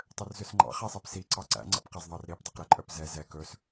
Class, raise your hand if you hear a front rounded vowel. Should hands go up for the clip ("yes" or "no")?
yes